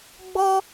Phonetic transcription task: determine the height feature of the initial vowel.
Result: mid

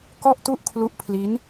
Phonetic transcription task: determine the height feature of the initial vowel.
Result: mid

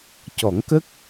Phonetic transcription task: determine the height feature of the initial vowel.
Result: mid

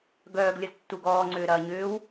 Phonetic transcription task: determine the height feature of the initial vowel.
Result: mid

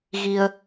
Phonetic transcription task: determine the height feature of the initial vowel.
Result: high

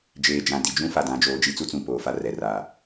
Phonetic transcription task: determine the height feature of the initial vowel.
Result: mid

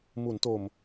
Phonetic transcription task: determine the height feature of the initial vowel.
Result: high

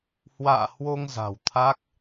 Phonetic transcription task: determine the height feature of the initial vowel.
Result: low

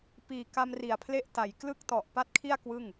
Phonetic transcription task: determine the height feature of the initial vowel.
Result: high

